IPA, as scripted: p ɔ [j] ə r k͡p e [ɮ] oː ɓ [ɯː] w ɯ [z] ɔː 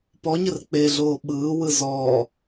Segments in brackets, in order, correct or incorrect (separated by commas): incorrect, correct, correct, correct